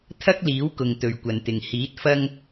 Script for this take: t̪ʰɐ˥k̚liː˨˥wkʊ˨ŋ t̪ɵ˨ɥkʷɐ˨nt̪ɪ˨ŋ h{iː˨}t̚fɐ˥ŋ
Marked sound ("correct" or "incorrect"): incorrect